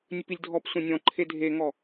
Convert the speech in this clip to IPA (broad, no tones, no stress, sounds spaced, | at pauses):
nʲ ɵ p i lʲ dʱ ɔ p sʷ ẽ nʲ ɔ̃ ǃʰ e dʱ e ŋ ɔ